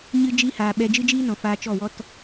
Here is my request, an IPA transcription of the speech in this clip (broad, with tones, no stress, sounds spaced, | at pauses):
ɲ ɨ˧ d͡ʒ i˧ h aː˨ ɓ ɛ˧ d͡ʒ ɨ˦ d͡ʒ iː˦ n ɔ̃˨ f aː˧ t͡ʃ ɔ˦˨ w ɔ˦ t